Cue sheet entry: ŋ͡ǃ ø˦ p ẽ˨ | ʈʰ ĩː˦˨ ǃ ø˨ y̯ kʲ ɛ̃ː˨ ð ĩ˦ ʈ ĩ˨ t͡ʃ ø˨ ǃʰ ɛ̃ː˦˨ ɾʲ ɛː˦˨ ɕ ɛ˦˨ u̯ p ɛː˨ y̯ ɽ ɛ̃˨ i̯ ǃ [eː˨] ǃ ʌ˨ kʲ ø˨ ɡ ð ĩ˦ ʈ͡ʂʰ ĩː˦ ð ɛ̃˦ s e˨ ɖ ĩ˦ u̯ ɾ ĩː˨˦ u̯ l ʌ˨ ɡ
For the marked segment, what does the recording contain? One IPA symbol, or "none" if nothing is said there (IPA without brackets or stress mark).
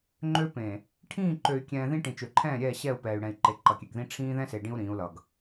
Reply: e˨